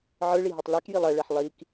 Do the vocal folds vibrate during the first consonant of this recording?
yes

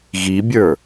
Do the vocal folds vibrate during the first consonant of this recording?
yes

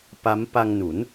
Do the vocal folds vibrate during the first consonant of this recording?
no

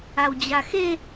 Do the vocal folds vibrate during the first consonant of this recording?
yes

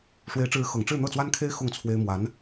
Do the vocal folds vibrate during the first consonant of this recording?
no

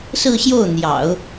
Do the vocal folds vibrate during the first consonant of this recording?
no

